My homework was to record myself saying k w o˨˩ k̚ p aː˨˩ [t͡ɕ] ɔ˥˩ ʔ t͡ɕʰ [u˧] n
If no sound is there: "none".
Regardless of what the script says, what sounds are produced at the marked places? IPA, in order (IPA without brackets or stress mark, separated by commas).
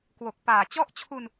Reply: t͡ɕ, u˧